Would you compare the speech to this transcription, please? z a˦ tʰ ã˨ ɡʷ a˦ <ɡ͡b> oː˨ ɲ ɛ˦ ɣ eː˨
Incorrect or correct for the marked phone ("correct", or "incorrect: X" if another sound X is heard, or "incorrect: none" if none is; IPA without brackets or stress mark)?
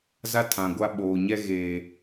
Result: incorrect: ɓ